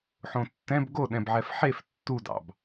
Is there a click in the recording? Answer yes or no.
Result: no